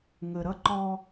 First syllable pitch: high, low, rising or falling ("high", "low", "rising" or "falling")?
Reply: low